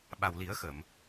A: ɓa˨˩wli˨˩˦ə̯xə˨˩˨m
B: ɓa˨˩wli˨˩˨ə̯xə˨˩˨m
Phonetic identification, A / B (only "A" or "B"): A